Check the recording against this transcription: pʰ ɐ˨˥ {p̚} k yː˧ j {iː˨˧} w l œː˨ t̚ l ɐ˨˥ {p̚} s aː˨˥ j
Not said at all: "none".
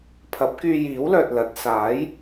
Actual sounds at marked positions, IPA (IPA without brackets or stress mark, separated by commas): p̚, iː˨˥, t̚